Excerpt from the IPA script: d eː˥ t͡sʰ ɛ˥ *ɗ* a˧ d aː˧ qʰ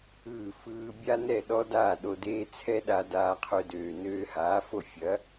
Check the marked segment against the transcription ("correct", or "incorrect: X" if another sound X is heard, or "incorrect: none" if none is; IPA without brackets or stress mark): correct